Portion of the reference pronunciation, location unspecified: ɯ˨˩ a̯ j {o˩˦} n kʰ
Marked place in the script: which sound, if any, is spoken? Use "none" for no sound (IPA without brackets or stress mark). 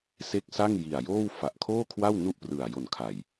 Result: o˨˩